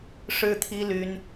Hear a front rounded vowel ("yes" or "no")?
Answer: yes